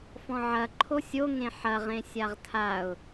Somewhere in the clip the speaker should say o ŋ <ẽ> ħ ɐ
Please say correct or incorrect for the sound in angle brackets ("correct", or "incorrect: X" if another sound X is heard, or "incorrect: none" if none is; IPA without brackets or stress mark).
correct